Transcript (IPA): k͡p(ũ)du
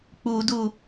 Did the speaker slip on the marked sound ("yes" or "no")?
yes